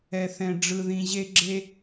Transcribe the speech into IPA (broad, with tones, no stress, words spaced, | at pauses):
ɛ˨θɛ̃˨ ɖ͡ʐɯ˨ðĩ˨ʑe˧ ɡ͡ǁe˧